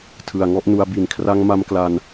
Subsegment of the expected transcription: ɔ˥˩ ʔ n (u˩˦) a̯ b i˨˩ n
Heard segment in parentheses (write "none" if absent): u˧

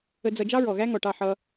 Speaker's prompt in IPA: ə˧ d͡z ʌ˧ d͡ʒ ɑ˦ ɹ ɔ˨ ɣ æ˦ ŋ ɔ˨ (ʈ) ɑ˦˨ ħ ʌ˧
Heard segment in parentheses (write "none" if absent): ʈ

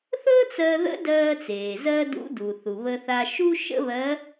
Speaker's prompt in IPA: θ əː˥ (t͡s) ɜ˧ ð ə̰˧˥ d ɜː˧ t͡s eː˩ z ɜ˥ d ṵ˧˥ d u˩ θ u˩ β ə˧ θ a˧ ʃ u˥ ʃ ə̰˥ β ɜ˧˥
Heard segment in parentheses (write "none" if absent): t͡s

